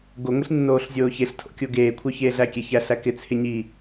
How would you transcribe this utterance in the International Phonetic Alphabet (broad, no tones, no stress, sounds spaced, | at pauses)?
ɡ o ŋʷ i ɬ nː oː ɬ zʲ oː ç e ɬ tʰ o̰ kʲ o ɡ eː kʷʰ œ ç eː ɮ æ kʲ ɛ ç æ ɬ æ k ɪ t͡sʰ ɪ ɲ i